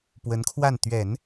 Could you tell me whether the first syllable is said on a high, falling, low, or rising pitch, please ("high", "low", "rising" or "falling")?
rising